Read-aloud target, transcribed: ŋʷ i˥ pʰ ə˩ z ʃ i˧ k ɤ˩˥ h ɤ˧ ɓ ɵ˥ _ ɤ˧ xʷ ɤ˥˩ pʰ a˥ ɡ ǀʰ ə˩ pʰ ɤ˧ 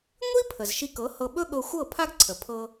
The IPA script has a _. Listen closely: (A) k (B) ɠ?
B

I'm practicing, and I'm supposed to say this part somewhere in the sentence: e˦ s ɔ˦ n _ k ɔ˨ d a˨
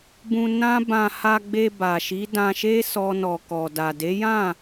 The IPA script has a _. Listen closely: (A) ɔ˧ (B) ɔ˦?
A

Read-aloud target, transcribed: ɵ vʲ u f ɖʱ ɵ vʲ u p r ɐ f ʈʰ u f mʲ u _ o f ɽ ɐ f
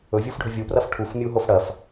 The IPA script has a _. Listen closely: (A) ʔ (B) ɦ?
B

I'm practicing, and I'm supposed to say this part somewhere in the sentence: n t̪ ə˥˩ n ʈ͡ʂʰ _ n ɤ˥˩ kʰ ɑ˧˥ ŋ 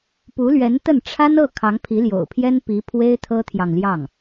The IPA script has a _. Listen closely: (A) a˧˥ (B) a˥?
B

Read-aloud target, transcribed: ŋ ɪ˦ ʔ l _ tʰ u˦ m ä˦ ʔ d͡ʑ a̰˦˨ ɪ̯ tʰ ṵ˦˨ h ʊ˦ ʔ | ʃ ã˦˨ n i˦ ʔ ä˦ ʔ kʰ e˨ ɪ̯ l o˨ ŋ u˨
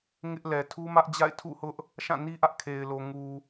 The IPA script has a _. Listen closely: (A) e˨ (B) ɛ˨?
B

